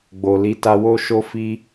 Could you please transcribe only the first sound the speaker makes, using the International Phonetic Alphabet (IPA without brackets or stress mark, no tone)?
ɡ͡b